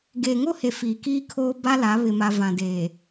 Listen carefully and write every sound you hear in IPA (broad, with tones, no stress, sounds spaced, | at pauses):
ɡ eː˨ ŋ o˦ h e˨ f iː˨ k iː˦ kʰ oː˦ b a˦ l a˨˦ β ɪ˨ m a˨ v ã˨ d eː˨